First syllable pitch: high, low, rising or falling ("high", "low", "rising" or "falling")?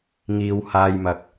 low